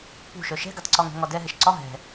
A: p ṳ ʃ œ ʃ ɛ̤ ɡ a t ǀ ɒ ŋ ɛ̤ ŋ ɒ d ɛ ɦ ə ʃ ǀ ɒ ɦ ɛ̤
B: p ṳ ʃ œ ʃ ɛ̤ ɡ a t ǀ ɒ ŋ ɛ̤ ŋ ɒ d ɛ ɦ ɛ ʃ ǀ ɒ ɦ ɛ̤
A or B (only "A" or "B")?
B